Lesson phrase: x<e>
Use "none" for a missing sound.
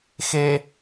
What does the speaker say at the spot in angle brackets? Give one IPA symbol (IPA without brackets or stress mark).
e